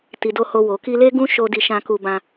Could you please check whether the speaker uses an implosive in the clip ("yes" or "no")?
no